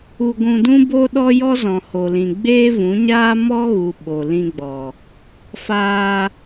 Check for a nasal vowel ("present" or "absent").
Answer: present